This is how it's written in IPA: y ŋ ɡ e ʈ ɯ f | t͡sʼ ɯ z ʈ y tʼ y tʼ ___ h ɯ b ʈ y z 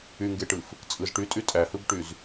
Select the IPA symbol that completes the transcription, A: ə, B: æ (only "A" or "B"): B